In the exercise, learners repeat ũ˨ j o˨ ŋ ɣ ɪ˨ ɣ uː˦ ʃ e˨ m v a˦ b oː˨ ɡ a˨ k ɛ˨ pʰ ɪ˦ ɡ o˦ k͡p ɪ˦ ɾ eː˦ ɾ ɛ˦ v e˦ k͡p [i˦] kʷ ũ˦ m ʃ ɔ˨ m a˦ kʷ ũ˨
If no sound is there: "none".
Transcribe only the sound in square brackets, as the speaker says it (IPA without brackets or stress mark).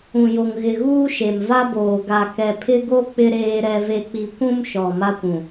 i˦